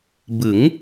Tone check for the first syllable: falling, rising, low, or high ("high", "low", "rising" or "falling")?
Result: rising